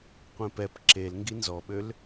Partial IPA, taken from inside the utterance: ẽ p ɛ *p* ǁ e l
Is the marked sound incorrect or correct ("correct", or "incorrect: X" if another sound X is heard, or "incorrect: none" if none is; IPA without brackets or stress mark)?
correct